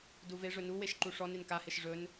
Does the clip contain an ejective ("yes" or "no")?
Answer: no